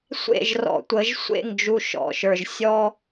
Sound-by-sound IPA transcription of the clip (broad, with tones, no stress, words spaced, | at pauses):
sʷḛ˦˨ʒrɔ̰˨tʷə˨˦ʒ sʷḛ˦˨ŋ d͡ʒu˨ ʃɔ̰˨ʃə˞˨ʒ sʲɔ˦